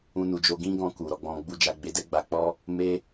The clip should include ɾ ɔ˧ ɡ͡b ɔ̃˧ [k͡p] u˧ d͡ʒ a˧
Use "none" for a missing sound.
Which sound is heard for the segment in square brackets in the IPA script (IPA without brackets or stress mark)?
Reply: ɡ͡b